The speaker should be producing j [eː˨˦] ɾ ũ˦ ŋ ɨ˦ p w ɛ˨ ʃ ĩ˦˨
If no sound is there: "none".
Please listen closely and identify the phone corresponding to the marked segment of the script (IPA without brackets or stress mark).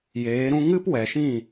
eː˨˦